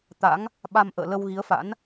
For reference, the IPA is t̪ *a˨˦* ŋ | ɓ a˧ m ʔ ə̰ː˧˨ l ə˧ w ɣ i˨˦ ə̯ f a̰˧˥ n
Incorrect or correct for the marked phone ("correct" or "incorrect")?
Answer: incorrect